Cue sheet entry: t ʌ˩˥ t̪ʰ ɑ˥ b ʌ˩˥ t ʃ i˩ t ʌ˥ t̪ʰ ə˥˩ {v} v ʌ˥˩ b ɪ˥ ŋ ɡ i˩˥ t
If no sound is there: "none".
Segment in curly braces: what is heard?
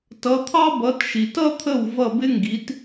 w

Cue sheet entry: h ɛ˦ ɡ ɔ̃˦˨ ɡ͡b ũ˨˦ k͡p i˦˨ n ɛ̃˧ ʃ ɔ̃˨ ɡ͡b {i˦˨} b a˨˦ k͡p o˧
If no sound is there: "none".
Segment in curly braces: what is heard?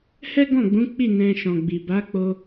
i˨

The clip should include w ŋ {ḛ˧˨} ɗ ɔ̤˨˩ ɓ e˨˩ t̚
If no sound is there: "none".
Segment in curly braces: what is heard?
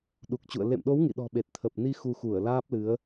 ḭ˧˨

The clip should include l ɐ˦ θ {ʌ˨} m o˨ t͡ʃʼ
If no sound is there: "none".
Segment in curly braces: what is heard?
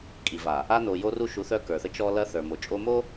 ə˞˨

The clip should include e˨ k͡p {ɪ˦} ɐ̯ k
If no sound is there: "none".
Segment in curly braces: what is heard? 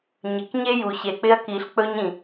ɪ˦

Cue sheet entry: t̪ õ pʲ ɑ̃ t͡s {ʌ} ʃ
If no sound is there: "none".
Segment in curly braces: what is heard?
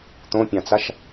a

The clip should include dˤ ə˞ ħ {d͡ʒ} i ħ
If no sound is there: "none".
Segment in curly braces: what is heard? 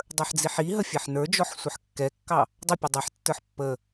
d͡z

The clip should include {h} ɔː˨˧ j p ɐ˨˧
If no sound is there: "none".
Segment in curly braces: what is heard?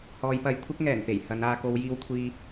h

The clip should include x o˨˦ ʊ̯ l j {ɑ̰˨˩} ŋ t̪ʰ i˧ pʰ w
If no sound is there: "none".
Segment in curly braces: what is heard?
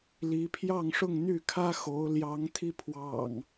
ɑ˨˦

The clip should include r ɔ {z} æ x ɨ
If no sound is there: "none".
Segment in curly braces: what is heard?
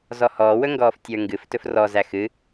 z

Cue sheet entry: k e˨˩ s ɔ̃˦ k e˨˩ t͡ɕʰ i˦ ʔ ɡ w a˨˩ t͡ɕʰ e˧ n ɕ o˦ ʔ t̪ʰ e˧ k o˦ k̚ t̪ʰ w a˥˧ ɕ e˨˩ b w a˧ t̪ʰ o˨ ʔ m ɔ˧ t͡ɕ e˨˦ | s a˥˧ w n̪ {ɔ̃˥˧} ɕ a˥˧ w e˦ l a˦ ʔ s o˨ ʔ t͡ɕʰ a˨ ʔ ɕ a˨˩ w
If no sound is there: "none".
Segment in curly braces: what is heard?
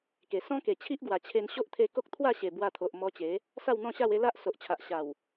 ɔ̃˥˧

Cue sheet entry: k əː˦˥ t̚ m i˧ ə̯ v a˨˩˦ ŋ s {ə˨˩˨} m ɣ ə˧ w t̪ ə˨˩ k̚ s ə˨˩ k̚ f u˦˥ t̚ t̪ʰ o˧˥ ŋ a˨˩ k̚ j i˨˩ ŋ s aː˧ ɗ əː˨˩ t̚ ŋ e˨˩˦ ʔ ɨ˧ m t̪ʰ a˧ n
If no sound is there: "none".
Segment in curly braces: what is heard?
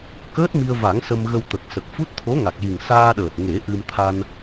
ə˧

